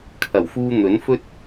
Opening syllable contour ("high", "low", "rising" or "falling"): low